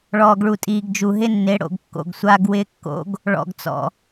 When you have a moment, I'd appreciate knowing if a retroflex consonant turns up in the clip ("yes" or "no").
yes